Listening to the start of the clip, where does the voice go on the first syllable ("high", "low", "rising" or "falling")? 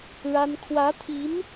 high